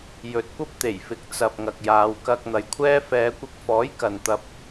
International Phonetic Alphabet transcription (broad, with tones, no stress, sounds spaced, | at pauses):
j ɵ˨ t̚ kʷ ɐ˥ p̚ t̪ e˨˩ j f ɪ˨˥ k̚ t͡s ɐ˨ p̚ ŋ ɐ˨ k̚ j aː˨˧ w k ɐ˧ k̚ n̪ ɐ˨ j kʷʰ ɛː˥ f ɛː˨˧ kʷ ɪ˧ k̚ f ɔː˨˥ j k ɐ˨ n t̪ ɐ˧ p̚